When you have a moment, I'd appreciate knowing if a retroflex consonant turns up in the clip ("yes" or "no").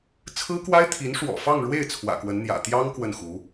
yes